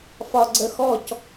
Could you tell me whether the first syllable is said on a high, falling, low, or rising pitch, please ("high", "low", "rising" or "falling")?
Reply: low